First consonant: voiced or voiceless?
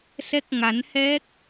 voiceless